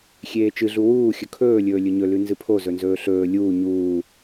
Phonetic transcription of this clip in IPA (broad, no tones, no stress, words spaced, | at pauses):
xʲeːt͡ʃɨɮu wuːxʲɵ kʰɵːlʲɵː lʲɵɲɵlʉ nzɨpʰozɵnzɵː ɬɵː lʲuː ɲuː